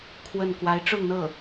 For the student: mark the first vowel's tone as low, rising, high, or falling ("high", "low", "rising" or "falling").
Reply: falling